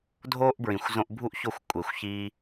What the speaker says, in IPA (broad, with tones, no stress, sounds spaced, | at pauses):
dʱ oː˦ ʔ b ɹ ĩ˨ xʷ z õ˧ ʔ bʱ u˦ ʔ ç o˦˨ xʷ kʷʼ e˨ xʷ ç iː˧